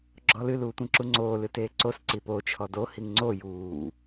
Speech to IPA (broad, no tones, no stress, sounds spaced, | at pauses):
ɡ͡ǁ ɔ l ɨ l uː tʷ ĩ ǁ u ŋ͡ǀ oː l ɨ t eː ǀ o s ǀ i p o t͡ʃʰ ɔ d o h i ŋ ŋ͡ǀ o j uː